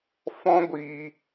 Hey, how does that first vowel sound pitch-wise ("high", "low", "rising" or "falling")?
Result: high